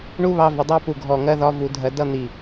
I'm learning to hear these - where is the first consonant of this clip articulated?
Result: retroflex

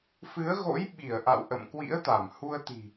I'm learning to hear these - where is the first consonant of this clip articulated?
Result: lips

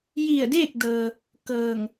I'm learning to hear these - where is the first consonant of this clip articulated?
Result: palate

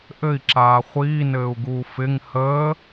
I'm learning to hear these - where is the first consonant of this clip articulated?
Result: throat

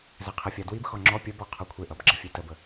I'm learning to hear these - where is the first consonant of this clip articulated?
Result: tongue tip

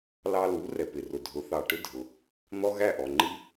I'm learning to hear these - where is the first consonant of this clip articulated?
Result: tongue tip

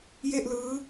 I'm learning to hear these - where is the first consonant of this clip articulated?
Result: palate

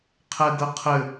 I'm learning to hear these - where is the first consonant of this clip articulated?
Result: uvula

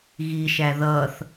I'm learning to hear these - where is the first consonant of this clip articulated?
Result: velum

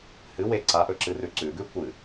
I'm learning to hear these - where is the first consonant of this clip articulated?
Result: throat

